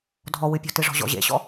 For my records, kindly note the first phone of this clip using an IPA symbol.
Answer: dʱ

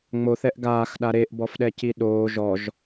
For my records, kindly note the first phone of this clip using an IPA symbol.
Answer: ŋ͡m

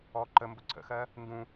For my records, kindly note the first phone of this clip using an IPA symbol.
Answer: ɔ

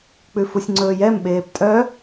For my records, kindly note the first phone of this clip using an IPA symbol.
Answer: k͡p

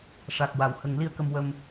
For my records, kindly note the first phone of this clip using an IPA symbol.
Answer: ʂ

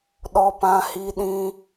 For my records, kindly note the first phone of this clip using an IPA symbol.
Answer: ɗ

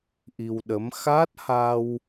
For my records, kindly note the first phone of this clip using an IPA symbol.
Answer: ʔ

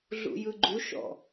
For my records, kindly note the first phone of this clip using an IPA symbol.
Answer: ɮ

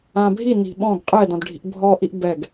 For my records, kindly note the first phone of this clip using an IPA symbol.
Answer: ã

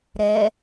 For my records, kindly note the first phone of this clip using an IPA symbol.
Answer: ɾ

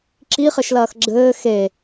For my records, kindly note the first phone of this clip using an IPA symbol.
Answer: ǁ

